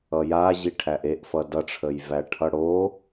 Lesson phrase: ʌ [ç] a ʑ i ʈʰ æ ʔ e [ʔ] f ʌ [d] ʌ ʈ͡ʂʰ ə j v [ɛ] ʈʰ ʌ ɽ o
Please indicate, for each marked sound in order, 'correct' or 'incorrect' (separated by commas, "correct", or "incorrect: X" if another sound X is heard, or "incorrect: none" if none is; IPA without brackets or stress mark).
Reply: incorrect: j, correct, correct, incorrect: æ